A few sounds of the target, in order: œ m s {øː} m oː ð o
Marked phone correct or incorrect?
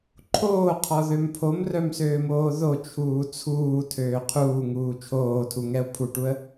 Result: correct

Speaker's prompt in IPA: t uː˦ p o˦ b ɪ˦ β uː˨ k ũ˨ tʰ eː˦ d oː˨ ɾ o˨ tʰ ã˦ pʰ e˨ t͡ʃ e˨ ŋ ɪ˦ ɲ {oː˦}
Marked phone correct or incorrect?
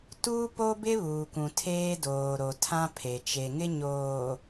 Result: incorrect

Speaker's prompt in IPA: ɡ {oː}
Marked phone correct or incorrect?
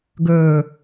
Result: incorrect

